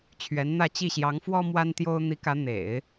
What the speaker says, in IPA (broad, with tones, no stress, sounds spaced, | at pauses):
t͡ɕʰ ɥ ɛ˧˥ n n̪ ä˥˧ t͡ɕ i˥˩ ɕ j ɑ˧˥ ŋ f w ɔ˥ m w a˥ n t̪ j o˥ ʊ̯ n̪ i˧˥ k ä˧˥ n̪ ḛ˨˩˦ ɪ̯